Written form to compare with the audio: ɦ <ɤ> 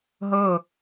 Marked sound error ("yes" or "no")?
no